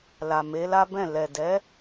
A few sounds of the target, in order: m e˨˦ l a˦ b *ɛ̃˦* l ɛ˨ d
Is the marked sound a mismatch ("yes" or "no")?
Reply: yes